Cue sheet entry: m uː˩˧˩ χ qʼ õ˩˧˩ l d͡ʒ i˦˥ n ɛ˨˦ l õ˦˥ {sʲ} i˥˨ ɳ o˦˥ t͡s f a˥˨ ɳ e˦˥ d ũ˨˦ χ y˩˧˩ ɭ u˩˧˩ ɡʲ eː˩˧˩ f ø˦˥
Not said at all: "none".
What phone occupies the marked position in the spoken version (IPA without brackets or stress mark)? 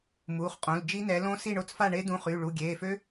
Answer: s